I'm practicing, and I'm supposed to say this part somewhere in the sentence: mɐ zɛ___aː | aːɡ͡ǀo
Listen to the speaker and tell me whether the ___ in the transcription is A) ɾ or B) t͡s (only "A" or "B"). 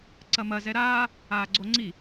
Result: A